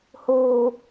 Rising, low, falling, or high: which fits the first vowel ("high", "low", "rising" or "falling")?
low